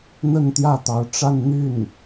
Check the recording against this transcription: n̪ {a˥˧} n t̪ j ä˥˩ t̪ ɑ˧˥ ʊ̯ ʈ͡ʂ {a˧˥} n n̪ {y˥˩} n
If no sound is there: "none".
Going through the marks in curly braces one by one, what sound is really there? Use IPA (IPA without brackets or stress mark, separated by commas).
ə˥˧, a˥˧, y˥˩